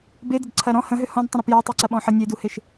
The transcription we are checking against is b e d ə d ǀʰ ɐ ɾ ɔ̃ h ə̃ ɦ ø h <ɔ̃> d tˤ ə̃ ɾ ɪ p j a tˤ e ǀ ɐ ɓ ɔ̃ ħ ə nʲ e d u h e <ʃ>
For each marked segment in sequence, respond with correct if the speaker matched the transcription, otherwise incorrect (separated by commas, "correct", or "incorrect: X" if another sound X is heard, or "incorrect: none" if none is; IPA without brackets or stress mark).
correct, correct